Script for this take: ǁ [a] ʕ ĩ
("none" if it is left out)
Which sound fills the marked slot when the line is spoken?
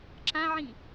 ã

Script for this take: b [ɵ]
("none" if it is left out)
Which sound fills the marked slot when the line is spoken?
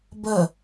ə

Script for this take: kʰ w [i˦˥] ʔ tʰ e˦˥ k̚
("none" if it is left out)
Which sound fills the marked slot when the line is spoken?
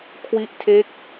i˦˥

